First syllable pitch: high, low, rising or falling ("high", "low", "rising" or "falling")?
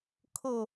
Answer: falling